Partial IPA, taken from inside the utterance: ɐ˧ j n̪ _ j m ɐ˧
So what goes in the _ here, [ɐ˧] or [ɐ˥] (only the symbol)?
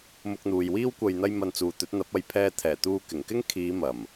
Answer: ɐ˥